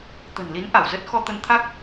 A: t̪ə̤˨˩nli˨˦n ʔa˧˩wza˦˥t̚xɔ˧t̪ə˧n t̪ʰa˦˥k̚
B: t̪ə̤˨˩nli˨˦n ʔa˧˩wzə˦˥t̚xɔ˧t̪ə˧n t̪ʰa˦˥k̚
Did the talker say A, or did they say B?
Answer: B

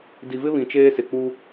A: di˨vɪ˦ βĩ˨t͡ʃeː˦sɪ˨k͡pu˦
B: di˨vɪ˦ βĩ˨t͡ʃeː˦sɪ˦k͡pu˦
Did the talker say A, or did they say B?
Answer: A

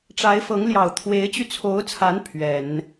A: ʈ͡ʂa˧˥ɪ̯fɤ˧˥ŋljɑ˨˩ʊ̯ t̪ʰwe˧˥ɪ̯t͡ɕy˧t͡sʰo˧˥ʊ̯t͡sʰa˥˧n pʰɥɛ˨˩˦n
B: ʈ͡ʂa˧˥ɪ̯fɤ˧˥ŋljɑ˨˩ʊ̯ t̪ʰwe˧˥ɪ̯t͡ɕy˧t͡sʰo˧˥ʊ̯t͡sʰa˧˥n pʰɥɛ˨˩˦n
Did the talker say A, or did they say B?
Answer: B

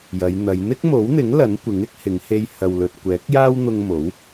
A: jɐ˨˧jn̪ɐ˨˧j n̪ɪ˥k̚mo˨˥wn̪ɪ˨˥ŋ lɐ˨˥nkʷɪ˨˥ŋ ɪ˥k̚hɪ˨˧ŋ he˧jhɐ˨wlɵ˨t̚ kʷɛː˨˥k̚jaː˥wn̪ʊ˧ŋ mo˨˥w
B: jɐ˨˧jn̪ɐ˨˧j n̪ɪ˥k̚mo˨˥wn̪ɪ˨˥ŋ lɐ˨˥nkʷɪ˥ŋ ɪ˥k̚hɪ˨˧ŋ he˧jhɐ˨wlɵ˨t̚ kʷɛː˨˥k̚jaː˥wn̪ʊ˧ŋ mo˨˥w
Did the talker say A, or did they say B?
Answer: A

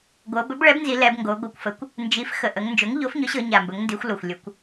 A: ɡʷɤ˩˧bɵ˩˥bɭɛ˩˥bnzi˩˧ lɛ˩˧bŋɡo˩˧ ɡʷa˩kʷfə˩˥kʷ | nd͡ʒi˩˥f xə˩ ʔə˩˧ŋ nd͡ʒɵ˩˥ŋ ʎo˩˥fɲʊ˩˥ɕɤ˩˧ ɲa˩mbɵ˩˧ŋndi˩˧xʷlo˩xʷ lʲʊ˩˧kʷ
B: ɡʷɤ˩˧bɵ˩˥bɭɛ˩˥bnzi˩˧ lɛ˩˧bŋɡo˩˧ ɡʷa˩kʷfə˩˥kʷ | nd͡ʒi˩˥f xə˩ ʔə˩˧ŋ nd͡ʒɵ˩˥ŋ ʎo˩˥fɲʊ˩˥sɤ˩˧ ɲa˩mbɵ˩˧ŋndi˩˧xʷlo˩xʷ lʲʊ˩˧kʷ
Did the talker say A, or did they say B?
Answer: A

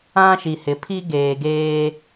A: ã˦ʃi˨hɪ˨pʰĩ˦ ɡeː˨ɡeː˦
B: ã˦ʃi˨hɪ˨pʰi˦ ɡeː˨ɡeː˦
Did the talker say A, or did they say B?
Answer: B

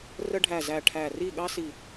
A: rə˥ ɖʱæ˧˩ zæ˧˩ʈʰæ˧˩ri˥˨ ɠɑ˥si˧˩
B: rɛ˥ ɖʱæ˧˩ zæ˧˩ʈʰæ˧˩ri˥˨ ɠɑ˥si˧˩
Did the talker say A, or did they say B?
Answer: A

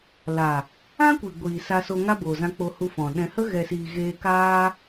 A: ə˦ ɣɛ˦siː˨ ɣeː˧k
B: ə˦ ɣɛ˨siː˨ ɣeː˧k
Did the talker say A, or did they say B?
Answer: B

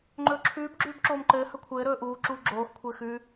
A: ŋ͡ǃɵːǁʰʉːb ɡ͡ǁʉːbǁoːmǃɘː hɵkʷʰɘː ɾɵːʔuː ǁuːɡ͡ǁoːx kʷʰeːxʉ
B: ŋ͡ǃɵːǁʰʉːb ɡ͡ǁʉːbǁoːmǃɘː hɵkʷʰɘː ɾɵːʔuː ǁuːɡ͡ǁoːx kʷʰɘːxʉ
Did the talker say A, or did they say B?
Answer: B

